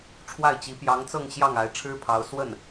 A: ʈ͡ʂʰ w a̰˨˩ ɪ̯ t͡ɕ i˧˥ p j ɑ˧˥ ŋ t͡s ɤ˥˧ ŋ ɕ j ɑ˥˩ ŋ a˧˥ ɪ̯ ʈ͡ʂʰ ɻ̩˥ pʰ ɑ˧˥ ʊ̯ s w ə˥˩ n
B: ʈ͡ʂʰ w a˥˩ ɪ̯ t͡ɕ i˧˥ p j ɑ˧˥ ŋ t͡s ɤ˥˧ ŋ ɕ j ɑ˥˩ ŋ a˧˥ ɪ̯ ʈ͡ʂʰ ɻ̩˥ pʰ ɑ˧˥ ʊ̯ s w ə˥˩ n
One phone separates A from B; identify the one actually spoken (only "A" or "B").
B